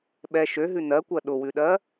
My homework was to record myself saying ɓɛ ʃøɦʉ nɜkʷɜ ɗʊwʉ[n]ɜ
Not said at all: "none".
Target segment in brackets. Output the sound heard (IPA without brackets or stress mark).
ɗ